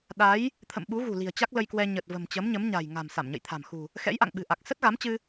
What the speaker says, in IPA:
ɗ a˨˦ j | t̪ʰ ə̰˧˨ m ɓ u˨˦ ɣ ṳ˨˩ l i̤˨˩ ə̯ t͡ɕ a˦˥ k̚ l ə˧ j k w ɛ˧ ɲ ə˨˩ t̚ v ə̤˨˩ m t͡ɕ ə˨˦ m ɲ ə˨˦ m ɲ a̤˨˩ j ŋ a̤˨˩ m s a˧˩ m ɲ ə̰˧˨ j t̪ʰ a̤˨˩ m x ṳ˨˩ | x ɛ̰˧˥ j ʔ a̰˧˨ ŋ ɓ ɨ̤˨˩ ʔ a˨˩ k̚ s ə˦˥ t̚ ɣ a˨˦ m t͡ɕ ɨ˧

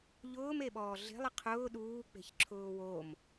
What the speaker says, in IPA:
ʎ ʊː m e ɓ ɔː ɮ e̤ lˠ ɪ qʰ ʊː ɗ uː k͡p e̤ ç ǁʰ ʊː w o m

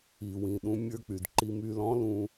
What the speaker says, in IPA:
i˩ w ĩ˩ ɗ ũ˧ mʲ ə˞˧ k͡p y˩ d ǃ i˧ m y˧ l ɔ̃˥ l ũ˧

